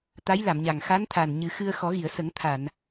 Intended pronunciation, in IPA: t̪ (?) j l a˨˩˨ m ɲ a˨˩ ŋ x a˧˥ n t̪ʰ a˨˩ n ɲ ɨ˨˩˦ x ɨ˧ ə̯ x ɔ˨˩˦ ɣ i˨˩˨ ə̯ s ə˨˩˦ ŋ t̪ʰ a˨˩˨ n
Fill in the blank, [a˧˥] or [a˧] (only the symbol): a˧˥